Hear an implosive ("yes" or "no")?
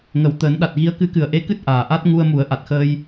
yes